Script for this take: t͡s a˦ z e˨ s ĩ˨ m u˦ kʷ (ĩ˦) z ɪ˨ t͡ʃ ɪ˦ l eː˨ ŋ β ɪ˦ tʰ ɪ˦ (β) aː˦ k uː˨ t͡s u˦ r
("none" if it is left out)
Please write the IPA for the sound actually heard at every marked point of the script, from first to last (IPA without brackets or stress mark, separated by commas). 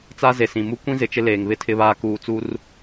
ĩ˦, β